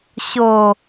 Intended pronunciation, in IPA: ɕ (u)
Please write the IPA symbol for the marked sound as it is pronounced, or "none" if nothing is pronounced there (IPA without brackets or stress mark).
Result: o